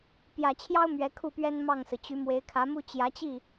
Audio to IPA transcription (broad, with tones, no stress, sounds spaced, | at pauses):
p j ä˨˩ t͡ɕʰ j ɑ˥ ʊ̯ m ɥ ɛ˧˥ kʰ u˥˩ p ɥ ɛ˥ n m ɑ˥˩ ŋ s ɹ̩˩ t͡ɕ y˧˥ m w e˧˥ ɪ̯ kʰ ä˧˥ m u˥ t͡ɕ j ä˧˥ t͡ɕ i˥˩